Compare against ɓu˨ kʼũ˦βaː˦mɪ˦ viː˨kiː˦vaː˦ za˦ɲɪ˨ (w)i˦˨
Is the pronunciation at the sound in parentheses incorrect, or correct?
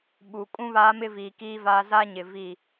incorrect